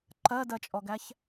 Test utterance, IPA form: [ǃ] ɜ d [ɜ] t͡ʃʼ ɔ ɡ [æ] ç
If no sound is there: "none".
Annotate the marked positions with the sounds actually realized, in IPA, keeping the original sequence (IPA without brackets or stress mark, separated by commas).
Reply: ǃ, ɜ, æ